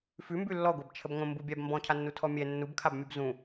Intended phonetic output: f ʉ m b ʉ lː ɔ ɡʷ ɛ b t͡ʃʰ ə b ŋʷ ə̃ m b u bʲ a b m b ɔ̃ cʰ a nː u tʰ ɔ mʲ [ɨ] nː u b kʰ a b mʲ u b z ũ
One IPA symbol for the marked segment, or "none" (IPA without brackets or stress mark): ɛ